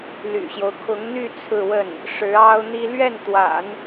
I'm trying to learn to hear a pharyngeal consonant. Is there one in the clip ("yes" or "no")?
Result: no